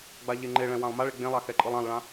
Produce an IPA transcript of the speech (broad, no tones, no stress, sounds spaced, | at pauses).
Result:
ɡ͡b a ʎ e ŋ͡ǃ e ɭ ɛ̃ w ã lˠ m a ɭ e ɡ͡b ẽ lˠ a x ɛ ǃʼ ɯ lˠ ã lˠ ɭ ã